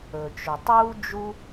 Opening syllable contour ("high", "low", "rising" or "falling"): low